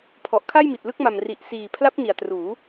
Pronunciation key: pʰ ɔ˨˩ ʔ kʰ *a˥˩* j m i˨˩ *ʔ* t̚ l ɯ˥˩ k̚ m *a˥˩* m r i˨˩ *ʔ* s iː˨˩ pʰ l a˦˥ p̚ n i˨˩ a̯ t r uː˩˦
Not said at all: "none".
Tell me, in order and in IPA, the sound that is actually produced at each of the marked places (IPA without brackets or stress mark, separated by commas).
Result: a˥˩, none, a˨˩, ʔ